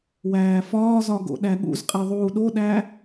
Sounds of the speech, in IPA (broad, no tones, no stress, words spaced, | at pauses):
wæːfɒːzɒ ɡo̰ɗæɠṵzqʼe ðˤuːɗoɗæ